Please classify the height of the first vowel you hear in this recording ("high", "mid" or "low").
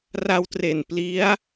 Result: low